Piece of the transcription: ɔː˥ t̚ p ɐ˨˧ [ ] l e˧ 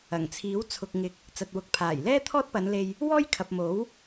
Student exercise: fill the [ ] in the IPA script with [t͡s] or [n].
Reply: n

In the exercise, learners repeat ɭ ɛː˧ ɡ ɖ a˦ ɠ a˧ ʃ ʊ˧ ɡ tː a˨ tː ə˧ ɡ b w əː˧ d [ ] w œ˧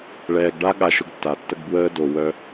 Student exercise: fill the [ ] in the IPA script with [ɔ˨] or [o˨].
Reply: o˨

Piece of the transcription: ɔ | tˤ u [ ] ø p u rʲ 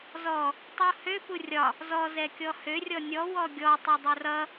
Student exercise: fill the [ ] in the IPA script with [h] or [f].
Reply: h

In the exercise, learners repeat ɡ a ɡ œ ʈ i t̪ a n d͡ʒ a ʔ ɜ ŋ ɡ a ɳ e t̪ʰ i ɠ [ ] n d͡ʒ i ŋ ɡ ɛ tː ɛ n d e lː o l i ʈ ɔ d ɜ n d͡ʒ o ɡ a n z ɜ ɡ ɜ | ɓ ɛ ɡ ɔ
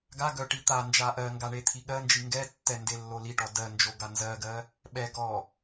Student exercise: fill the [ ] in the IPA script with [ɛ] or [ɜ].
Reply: ɜ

